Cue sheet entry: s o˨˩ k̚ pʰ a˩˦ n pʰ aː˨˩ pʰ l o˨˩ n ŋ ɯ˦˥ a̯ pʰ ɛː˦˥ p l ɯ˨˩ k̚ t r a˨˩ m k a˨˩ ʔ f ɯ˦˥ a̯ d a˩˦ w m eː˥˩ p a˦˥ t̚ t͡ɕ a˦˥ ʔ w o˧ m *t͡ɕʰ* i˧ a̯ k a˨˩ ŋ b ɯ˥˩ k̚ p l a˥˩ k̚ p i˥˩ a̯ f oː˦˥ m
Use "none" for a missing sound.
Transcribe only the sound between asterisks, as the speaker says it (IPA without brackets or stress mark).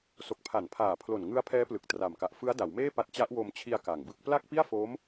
t͡ɕʰ